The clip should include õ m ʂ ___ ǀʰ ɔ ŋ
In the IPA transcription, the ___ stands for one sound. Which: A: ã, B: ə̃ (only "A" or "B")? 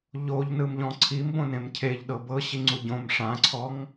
A